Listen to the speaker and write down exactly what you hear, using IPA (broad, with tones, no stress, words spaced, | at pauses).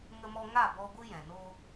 ŋə˦mɔ˦ ŋa˦˨bɔ˧ ɡʷɨ˦jɛ̃˨noː˦